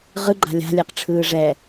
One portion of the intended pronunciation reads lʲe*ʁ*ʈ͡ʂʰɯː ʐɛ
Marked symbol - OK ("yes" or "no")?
no